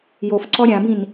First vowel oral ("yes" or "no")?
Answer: yes